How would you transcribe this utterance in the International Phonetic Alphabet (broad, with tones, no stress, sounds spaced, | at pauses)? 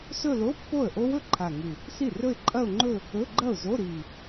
s ɵ˥˧ l o˧˥˧ pː o˥˩ ə̯ ʔ o˦˥ w ɵ˥˩ ǃʰ a˨˩ ŋ ɨ˨˩ | s i˥˩ r ɵ˥˧ ɪ̯ ǃʼ ɐ˥˧ ʊ̯ ŋ͡ǃ ɵ˥˧ | ɵ˧˥˧ ɡ͡ǃ ɐ˥˩ ʊ̯ z o˧˥˧ ɾ i˨˩